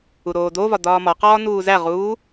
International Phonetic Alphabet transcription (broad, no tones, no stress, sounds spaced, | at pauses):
u ɾ oː d o v ɒ d ɒː m ɒ q ɒː n uː z æ ʁ uː